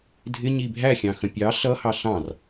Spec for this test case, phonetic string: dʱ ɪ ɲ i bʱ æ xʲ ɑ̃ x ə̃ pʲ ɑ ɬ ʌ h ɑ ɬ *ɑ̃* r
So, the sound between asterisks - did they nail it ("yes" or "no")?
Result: yes